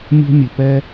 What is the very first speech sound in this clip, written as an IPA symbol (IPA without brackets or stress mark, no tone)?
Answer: mʲ